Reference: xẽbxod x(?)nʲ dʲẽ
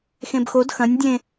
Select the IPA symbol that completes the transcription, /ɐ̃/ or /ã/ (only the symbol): ɐ̃